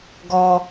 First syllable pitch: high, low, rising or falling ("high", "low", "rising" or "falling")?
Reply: high